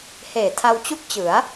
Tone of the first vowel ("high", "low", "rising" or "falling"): low